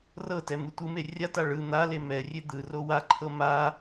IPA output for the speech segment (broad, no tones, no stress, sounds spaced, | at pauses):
r ɤ t ɛ m ɯ tʷ ɯ m e rʲ a t a ɭ ɯ n̪ a l e m ɛ rʲ e d̪ ɯ r o w a ǃʰ ɤ m a